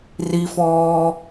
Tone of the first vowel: high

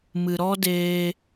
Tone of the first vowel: low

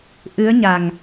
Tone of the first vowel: rising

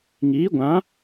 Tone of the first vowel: rising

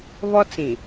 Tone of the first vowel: high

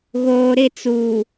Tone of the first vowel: low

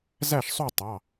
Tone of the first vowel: falling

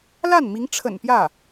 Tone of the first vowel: falling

